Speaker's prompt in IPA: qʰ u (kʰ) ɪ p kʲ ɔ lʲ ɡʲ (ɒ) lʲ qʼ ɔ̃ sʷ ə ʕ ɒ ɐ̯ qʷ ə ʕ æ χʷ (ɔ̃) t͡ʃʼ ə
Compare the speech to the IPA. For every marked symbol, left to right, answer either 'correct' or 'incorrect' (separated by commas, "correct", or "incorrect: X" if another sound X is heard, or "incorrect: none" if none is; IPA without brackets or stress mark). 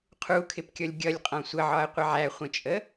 correct, incorrect: ʌ, incorrect: ə̃